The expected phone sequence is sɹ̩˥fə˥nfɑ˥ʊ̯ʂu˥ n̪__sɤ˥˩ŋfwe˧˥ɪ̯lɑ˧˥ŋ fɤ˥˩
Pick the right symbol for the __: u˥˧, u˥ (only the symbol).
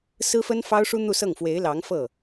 u˥˧